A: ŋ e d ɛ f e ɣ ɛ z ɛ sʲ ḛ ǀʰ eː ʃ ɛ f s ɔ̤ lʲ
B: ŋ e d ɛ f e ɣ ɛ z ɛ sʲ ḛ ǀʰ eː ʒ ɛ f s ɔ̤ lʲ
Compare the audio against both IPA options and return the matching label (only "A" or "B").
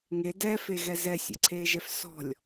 B